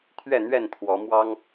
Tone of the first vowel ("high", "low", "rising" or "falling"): falling